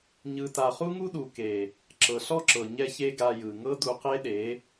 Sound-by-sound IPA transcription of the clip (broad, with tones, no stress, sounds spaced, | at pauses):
ɲ ɯ˧ t a˧ χ u˦ ŋ u˦ ɗ u˨ k e˨ | ǁ ɤ˨ ɬ ɔ˦ ǁ ɤ˨ ɲ ɛ˦ ç e˦ ɡ a˧ j ɯ˨ ŋ ɤ˦ d u˧ q e˦ ɗ e˨˦